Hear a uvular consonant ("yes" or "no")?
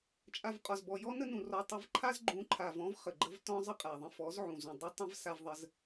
yes